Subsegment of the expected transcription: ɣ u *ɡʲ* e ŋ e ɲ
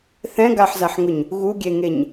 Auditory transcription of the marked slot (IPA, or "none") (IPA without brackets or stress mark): ɡʲ